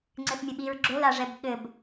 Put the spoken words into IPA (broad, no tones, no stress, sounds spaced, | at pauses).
ŋ͡ǀ ɘ θ mʲ ɘ ɓ i ɹ ɡ͡ǁ o l a ʐ ɛ b ɠ ɘ b